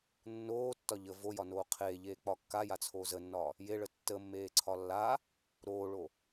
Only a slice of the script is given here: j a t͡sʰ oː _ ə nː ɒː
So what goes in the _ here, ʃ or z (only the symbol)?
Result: z